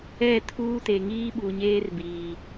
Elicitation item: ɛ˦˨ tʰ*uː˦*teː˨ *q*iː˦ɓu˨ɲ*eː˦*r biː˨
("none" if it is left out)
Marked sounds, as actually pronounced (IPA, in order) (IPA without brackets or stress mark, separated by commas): uː˦, ŋ, eː˦